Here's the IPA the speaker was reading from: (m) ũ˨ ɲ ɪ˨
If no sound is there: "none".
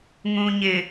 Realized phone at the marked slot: ŋ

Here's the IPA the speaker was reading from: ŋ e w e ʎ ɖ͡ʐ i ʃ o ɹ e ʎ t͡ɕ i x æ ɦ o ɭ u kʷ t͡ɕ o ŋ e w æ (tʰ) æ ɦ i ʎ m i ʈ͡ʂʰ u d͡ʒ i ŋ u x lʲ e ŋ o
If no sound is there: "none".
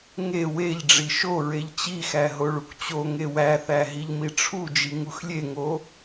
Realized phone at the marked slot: θ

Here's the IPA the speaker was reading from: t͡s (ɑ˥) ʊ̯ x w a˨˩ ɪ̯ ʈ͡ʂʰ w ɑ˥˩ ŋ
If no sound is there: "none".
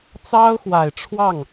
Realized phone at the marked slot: ɑ˥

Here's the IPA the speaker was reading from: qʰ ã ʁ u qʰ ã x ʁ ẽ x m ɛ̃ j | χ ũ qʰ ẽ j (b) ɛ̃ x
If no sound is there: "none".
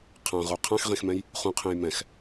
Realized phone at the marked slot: m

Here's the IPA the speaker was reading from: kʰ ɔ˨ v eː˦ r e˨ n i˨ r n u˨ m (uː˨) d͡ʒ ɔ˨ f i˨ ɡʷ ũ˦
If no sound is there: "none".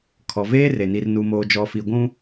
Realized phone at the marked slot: oː˨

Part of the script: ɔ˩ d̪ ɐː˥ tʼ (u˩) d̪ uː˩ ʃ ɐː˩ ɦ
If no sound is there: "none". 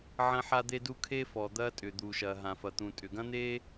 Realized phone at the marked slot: ʏ˩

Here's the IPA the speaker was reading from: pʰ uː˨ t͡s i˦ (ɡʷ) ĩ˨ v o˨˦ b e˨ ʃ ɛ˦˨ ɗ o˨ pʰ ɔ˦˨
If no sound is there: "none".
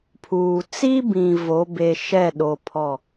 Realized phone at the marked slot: b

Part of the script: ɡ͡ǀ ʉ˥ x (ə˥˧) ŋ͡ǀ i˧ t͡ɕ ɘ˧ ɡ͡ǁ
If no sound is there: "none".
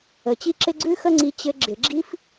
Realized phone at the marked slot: ə˥˧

